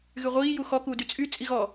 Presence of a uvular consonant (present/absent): present